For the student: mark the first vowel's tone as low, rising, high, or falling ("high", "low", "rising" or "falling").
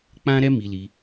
high